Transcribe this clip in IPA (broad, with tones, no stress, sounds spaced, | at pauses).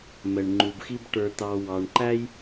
m ɛ˧ ɳ ŋ͡ǃ u˧ b x i˥ b ʈ ə˞˧ t̪ ɑ˧ w ɑ˧ ɳ ǃ æ˥ j